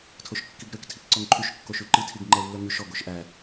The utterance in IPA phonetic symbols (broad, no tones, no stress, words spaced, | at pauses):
tʰoʃkːiɡɾøk tʰikǀɔŋǃʰyʃ kːoʃyǃi tʰiɡŋ͡ǃɛlːœŋʉʃ ɔɡ oʃʔæ